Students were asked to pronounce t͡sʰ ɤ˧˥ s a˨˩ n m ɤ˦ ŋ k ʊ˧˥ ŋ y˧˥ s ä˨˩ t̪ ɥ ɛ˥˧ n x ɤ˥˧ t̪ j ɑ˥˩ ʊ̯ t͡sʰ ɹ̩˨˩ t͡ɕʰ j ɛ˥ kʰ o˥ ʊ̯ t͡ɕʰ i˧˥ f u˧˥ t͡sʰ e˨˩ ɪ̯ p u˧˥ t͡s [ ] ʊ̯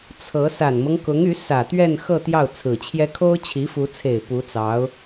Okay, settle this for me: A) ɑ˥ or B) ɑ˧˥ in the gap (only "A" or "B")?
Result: B